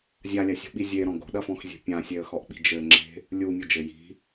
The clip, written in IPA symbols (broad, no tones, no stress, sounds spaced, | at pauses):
zʲ a lʲ a sʲ o̤ ɓ i zʲ e ɾ ɔ̃ ɡ o̤ ɗ ɐ f ɔ̃ x zʲ e̤ pʲ ã sʲ e ə̯ x ɔ ʔ ɓ i̤ d͡ʒ ɘ ŋ͡ǁ e̤ | lʲ u mʲ o d͡ʒ ɘ j i̤